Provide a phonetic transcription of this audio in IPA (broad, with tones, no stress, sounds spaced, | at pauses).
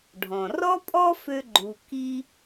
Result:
ɖʱ ɔ̃˩ r ɔ˥ pʼ ɔ˥ f ø˦ ɡ͡ǃ u˨ k i˦